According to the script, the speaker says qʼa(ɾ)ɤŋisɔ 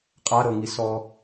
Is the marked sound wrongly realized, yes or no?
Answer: no